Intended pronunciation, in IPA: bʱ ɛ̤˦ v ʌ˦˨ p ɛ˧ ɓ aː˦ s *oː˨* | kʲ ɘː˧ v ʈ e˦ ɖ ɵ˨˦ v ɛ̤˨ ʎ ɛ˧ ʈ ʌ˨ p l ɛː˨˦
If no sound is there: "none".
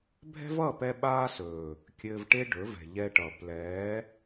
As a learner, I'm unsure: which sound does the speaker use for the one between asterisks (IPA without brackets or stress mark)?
ɵː˨